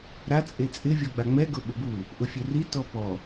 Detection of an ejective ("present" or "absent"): present